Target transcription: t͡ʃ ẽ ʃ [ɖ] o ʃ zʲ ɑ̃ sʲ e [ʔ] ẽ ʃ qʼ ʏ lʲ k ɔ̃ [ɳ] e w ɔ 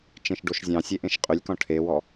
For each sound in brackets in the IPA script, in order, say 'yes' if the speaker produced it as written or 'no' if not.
yes, yes, no

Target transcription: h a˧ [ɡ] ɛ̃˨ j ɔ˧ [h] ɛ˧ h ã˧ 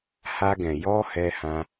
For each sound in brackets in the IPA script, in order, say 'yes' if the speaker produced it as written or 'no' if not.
yes, yes

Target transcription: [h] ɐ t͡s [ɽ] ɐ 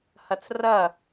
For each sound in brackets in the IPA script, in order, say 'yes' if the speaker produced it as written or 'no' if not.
yes, no

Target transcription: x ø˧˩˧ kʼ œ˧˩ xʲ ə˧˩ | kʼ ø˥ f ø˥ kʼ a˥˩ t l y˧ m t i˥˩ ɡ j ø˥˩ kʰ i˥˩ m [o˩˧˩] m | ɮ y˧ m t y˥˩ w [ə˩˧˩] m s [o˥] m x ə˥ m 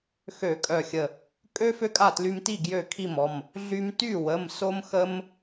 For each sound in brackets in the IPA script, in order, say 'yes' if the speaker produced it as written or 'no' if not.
no, yes, yes

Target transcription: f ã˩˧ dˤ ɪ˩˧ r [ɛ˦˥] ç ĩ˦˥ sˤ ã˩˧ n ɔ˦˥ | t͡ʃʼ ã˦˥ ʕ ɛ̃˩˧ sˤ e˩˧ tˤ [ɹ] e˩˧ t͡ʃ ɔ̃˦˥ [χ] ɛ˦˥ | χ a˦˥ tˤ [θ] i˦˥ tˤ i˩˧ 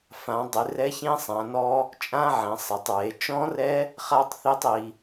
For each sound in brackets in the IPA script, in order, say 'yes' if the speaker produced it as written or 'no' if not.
yes, yes, no, yes

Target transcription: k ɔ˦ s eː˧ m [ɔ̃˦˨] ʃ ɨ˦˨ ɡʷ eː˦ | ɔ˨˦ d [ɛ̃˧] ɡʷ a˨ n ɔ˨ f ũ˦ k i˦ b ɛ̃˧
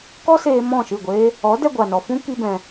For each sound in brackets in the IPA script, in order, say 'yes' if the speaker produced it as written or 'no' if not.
yes, no

